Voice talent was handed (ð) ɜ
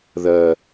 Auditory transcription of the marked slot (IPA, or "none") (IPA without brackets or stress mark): ð